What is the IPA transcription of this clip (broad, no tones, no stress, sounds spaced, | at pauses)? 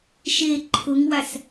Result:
ʃ e ǃʰ ʊ ŋ w a s